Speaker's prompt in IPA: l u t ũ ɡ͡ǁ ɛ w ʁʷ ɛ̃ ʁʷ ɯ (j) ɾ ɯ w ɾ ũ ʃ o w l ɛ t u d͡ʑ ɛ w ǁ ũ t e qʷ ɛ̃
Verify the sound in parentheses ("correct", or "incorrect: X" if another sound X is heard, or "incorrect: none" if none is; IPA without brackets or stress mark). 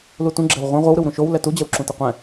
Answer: incorrect: w